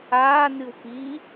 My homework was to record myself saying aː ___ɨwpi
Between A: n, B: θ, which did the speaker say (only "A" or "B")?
A